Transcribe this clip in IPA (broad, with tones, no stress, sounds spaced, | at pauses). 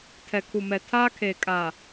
tʰ ɛ˨ kʰ u˨ m ɛ˨ tʰ aː˦ kʰ eː˨ kʼ a˨